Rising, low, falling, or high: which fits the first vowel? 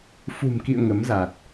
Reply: low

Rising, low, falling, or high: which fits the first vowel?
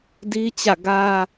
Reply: high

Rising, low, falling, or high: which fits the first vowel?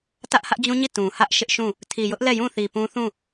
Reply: high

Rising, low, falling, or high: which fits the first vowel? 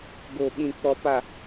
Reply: low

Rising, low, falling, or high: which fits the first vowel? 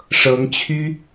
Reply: rising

